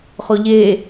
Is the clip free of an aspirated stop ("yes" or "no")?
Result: yes